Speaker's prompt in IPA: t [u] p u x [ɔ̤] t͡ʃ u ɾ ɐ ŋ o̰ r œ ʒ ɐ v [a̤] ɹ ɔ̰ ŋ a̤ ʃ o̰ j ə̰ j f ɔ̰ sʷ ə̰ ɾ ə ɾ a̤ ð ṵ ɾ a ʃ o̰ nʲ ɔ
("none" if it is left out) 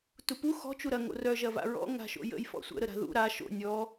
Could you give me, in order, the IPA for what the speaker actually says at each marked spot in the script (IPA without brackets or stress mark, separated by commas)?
u, ɔ̤, a̰